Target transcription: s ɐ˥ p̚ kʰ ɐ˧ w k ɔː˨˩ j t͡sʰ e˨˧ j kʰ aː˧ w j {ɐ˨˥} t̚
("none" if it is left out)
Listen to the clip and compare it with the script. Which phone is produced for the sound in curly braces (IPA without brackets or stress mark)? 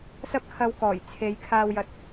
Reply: ɐ˨˥